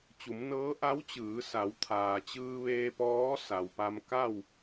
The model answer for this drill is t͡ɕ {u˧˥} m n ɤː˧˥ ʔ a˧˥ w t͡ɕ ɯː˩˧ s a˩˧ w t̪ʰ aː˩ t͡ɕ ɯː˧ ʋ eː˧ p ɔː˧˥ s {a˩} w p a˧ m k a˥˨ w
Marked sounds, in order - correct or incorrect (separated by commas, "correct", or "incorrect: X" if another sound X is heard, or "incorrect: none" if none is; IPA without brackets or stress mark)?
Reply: incorrect: u˩˧, correct